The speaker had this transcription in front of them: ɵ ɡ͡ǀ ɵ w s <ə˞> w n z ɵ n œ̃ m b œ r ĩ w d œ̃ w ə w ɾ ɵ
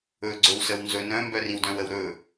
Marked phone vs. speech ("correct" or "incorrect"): incorrect